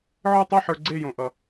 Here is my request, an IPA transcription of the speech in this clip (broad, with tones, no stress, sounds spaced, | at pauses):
ʕ ə˞˥˧ tˤ i˥˧ ħ ə˞˧ ɡ͡ǀ e˥˧ j õ˧ ʔ ʌ˧